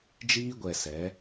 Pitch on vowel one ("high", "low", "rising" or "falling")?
high